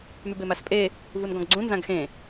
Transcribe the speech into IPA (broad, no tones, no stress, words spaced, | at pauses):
mybemaspʼe | vunɡɔ̃ɡɡ͡ǀũ nzãɡxẽ